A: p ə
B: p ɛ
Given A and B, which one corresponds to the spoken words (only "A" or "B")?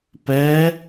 B